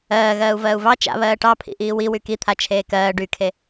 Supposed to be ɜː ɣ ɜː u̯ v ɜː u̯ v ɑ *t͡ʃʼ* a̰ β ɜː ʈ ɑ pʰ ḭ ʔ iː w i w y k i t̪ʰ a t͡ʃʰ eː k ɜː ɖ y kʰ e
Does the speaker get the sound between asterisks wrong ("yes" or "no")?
yes